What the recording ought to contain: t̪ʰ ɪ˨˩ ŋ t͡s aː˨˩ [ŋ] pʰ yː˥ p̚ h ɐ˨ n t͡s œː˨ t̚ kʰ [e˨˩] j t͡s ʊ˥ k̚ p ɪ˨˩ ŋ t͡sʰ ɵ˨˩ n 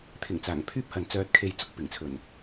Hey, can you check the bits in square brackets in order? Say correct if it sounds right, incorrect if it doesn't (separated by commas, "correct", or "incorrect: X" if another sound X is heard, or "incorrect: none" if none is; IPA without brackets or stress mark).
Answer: correct, incorrect: e˨